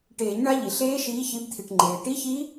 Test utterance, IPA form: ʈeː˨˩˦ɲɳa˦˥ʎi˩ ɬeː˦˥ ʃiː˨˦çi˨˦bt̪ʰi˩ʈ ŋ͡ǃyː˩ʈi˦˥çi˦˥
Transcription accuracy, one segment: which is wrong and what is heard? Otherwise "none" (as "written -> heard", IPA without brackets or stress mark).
yː˩ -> eː˩